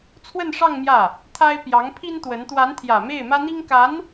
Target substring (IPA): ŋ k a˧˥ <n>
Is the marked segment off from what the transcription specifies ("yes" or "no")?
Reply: no